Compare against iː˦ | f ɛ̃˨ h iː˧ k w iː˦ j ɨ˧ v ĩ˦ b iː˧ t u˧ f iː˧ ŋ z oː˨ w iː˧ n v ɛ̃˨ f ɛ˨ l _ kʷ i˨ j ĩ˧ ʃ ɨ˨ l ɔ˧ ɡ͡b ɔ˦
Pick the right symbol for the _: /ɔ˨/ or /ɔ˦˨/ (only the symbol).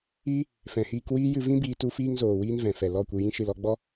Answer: ɔ˦˨